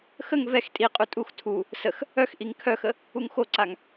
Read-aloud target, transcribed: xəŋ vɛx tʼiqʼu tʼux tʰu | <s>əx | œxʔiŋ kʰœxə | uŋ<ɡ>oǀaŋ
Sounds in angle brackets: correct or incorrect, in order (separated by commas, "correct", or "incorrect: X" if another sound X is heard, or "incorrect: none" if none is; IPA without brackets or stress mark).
correct, incorrect: x